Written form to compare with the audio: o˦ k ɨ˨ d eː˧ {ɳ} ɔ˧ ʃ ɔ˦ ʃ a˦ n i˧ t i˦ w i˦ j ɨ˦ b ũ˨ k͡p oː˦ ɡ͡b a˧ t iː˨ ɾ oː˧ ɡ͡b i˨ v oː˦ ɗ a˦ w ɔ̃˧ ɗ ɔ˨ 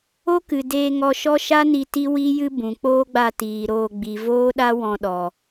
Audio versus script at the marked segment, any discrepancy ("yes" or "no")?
yes